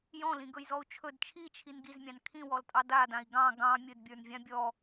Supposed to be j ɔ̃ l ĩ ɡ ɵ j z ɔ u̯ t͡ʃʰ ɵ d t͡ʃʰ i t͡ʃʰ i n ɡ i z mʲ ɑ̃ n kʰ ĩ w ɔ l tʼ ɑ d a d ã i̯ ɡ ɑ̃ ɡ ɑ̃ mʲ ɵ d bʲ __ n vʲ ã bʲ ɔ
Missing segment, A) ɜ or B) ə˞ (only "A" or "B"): B